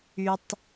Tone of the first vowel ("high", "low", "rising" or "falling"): high